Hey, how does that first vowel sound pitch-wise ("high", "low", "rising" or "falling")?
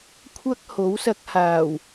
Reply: high